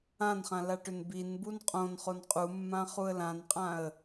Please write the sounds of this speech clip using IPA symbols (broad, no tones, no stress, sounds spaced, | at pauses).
ã n χ ã l a ʈ ʏ n b i n b u n qʼ õ n χ o n qʼ u mː ã χ u ə̯ l ã n qʼ ã ə̯